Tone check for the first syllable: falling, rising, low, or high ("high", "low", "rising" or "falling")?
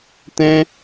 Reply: high